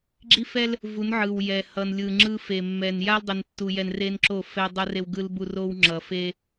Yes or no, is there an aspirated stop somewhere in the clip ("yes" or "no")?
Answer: no